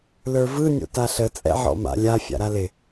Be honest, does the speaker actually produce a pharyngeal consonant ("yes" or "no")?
yes